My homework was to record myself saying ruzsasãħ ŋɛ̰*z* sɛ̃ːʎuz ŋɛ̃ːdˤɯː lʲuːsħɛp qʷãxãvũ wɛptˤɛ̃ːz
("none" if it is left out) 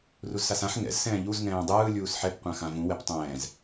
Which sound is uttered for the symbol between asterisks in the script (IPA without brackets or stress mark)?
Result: z